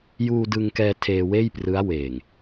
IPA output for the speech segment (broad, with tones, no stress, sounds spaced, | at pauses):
j uː˧ d ɯ˧ ŋ k ɛː˧ tʰ eː˧ w eː˥˩ j p r ɯ˦˥ a̯ w eː˨˩ ŋ